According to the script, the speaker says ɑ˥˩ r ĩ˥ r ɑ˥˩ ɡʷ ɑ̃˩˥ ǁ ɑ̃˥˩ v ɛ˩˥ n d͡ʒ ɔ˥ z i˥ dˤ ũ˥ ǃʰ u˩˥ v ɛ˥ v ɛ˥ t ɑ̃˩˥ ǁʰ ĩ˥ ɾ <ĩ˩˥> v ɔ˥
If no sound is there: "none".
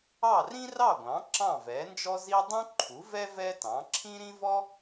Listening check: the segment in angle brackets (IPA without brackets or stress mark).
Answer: ĩ˥